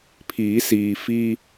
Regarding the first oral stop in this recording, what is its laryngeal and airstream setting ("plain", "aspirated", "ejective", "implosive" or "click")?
aspirated